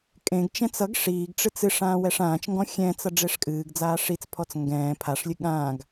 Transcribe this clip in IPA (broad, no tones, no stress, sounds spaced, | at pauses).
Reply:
kʼ ẽ ɡ t͡ʃ ɛ̃ t͡s ʌ ɡ ʂ iː ɡ ʈ͡ʂ ɨ t͡s ɨ ʂ ãː w ɛ ʂ ãː t͡ʃ ŋ ɡ ɔ̃ xʲ ɛ̃ t͡s ʌ ɖ͡ʐ e ʂ kʼ ɨː ɡ d͡z aː ʂ i t͡s pʰ ɔ t͡s ŋ ɡ ɛ̃ː pʰ a ʂ lʲ ɨ ɠ ã ɡ